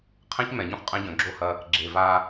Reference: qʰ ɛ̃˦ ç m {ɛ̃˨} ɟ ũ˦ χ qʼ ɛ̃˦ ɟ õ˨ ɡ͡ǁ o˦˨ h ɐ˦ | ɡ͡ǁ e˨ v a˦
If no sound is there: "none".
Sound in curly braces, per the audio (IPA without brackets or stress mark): ɛ̃˨˦